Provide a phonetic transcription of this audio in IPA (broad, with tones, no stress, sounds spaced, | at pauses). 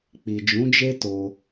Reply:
k͡p i˨ d͡ʒ ũ˨˦ d͡ʒ e˦ t o˧